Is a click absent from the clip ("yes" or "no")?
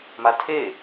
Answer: yes